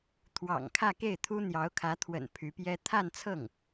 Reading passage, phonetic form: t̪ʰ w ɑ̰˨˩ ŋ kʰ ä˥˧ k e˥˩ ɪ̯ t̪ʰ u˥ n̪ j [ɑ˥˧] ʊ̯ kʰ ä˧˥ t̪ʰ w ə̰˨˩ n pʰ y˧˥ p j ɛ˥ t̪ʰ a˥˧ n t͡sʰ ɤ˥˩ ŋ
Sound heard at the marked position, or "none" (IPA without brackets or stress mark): ɑ˧˥